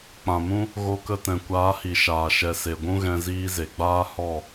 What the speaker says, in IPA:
k͡pã˨mũ˦ | ɣo˧kə˧tɛ̃˨ kʷaː˨˦hi˨ʃaː˨ ʃɛ˨se˨ɡʷũ˦ɣɛ̃˧ ziː˧ze˨ɡ͡baː˦ hɔ˦˨

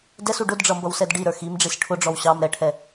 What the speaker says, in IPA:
dɛsu ɖʊdɖ͡ʐʌmbʌwsɛd ɖiɾə˞ ximɖ͡ʐis ʈʰʊɖ͡ʐɔw ɕɑm ɾɛʈʰɛ

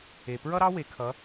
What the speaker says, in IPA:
e˩pɹʌ˥ɾɑ˥ we˩˧kʰʌ˩˧

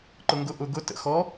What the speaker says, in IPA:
ǃʊŋɡʊ ʔʊ ɡʊ tə̰ xɔ

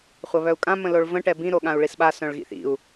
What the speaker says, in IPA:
χʷɐβœu̯kʼã mə̃loɭvə̃ ʈɛbĩ ɾoɠãu̯ɭisɓa sœ̃ɭɣḭθḭu̯

